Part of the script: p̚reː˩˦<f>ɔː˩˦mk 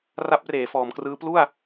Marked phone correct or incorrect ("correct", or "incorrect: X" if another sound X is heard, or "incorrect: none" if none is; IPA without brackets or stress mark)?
correct